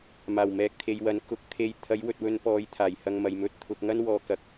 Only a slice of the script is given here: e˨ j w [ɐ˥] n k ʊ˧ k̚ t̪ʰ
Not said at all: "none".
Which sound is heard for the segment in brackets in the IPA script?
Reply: ɐ˨˥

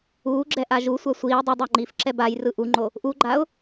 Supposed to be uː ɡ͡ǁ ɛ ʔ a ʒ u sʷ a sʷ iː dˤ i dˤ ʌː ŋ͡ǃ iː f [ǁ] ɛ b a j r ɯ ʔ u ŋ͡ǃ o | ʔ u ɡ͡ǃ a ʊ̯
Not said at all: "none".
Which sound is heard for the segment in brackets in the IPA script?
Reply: ǁ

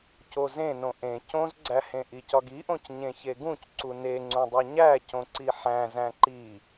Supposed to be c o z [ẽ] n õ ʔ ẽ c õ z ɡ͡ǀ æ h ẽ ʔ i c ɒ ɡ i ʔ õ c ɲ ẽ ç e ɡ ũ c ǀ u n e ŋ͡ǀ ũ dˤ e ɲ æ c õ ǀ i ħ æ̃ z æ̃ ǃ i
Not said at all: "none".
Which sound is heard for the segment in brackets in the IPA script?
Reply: ẽ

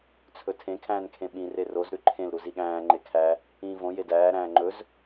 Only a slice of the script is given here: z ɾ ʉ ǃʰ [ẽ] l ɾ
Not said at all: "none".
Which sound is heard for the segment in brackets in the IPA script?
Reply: ẽ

